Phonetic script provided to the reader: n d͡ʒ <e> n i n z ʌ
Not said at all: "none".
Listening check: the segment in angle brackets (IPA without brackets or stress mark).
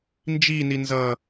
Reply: i